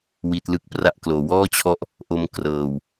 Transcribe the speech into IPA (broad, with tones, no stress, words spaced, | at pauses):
wi˦˥t̚lɯ˥˩k̚pra˥˩ʔ kloː˩˦wɔː˥˩t͡ɕʰɔ˦˥ʔ | ʔo˦˥m krɤː˨˩w